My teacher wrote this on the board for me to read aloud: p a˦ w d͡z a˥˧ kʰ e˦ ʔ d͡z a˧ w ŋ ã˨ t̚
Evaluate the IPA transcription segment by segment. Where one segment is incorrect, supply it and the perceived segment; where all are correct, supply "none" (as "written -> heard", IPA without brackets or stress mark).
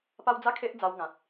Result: none